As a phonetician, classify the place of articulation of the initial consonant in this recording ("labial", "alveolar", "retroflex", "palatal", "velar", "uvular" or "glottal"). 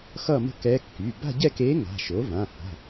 velar